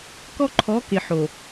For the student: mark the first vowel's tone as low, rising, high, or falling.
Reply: high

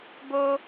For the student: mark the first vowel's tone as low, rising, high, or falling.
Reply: high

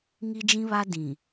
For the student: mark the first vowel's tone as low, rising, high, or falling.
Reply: high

